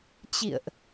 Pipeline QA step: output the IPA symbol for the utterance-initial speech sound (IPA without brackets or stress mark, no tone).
t͡ɕ